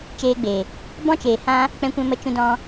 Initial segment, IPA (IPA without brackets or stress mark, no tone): t͡ʃ